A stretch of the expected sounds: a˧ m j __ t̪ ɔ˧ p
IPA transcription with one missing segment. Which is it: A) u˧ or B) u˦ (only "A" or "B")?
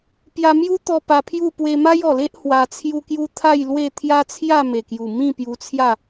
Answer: B